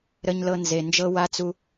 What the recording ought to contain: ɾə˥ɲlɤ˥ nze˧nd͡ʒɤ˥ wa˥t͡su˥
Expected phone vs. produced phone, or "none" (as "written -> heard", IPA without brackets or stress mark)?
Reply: none